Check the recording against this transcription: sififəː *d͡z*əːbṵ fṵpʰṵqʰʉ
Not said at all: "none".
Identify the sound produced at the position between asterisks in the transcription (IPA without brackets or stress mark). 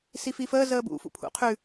z